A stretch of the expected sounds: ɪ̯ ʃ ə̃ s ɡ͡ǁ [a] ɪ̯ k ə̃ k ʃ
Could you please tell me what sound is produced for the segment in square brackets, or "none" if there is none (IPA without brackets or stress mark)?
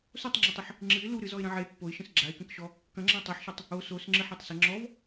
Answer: a